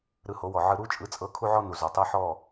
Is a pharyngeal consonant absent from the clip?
no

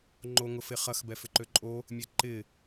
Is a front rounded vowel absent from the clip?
no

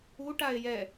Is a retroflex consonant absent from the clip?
no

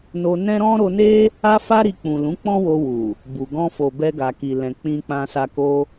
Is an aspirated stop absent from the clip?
yes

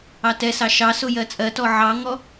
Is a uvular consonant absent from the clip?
yes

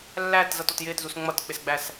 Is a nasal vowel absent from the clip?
yes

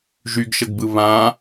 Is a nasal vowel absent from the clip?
no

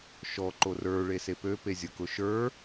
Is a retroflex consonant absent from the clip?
no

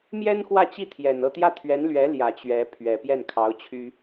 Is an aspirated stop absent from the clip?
no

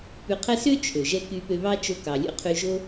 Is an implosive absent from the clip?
yes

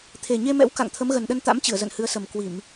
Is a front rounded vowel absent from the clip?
yes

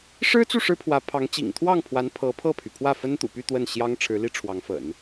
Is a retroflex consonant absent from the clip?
no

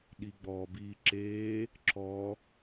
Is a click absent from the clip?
no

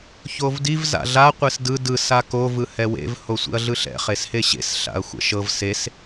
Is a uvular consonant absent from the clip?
no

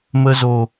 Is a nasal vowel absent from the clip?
yes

